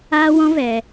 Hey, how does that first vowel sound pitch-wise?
high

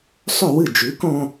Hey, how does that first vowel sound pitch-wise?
falling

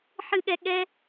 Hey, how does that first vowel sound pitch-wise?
high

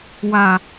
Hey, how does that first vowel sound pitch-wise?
low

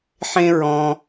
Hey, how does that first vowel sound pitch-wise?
high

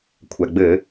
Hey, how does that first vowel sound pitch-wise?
low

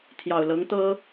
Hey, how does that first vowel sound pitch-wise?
low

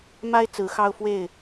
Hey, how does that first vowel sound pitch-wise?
high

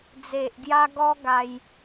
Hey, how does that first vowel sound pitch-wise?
low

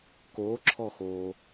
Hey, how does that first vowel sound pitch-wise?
rising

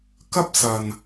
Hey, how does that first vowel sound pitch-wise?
high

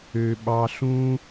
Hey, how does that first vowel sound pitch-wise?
high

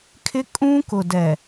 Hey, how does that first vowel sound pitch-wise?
high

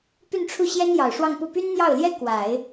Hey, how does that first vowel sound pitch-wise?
falling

